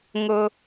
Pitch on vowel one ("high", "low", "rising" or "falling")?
high